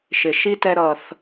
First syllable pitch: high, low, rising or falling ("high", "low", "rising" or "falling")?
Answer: low